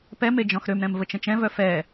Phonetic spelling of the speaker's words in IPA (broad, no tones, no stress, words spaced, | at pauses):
pɛme d͡ʒɔ̃xɾømɾɛ̃m vət͡ʃə̃t͡ʃɛ̃vœ fɛ